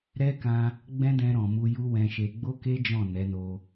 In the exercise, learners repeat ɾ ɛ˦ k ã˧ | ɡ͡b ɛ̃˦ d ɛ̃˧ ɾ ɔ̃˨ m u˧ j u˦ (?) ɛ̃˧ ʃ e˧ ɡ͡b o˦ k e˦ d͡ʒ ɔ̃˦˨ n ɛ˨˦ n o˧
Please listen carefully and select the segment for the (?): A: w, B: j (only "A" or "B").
A